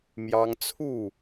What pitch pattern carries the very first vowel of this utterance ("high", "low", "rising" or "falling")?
high